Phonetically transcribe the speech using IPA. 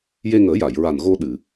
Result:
j e˧ ŋ əː˨˩˦ j a˨˩˨ j ɹ a˨˩ n ɣ o˧ ɗ ɨ˨˩˨

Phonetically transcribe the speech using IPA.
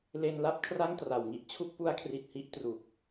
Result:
l e˧ n l a˥˩ p̚ kʰ r a˥˩ ŋ t r a˨˩ w ŋ i˦˥ ʔ t͡ɕʰ u˦˥ k̚ p u˦˥ a̯ kʰ r i˨˩ t̚ h i˦˥ ʔ t r u˨˩ k̚

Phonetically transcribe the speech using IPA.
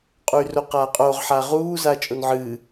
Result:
qʼ u y̯ r o q aː qʼ oː ʁ ħ a ʁ uː z aː t͡ʃʼ o n ʕ ɨː

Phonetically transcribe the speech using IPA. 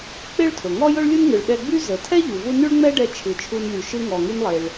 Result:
k͡p e˥ ɭ tʰ ɵ˩ ŋ ɔ˥ j ɵ˥ ɭ lʲ ɯ˥ n ŋ ɯ˩ ɭ ɗ ɛ˧ ɡ͡b y˥ z ə˩ tʰ ɛ˥ ʎ u˩ v u˥ n y˥ ɭ ŋ͡m ɛ˥ ɖ ɛ˧ t͡ʃʰ ɯ˩ t͡ʃʰ u˧ n lʲ u˩ ʃ ɯ˧ ŋ ɔ˩ ŋ y˧ n lˠ e˩ ɭ

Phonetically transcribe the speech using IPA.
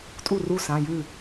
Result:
tʼ u˥˩ r u˥˩ s ã˩˧˩ j ʉ˥˩

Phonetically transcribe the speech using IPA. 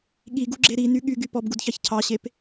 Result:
ɠ i ɡ u ɡ͡ǁ e ɾ i n y ɠ y ɡ y p ɔ b ɡ u d ç ɑ ç cʰ ɑ ɕ e p

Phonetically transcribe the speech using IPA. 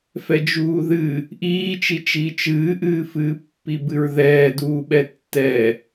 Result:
f ɛ d͡ʒ uː ð ɨ | ʔ iː t͡ʃ i t͡ʃ iː t͡ʃ ɨː ʔ ɨː f ɨː pː i b ɨ ɹ ð ɛː d uː ɓ ɛ tː ɛ

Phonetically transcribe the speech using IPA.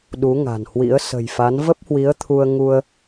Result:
ɗ u˨˦ ŋ a̤˨˩ n h w ḭ˧˥ ə̯ s ə̤˨˩ j f a˨˦ n v ə˦˥ p̚ h w i˨˦ ə̯ t̪ʰ u˧ ə̯ ŋ u˧ ə̯

